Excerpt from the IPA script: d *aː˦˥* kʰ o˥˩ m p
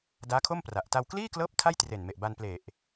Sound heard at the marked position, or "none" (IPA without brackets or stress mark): aː˦˥